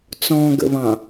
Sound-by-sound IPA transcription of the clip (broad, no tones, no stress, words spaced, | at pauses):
t͡sɔ̃ ɡə̰βɑ̃